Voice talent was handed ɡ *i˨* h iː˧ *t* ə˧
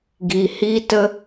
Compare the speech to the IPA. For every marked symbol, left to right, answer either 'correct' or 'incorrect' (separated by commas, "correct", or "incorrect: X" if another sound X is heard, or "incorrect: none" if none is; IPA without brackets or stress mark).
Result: correct, correct